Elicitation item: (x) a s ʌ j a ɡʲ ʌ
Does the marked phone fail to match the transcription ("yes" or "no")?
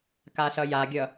yes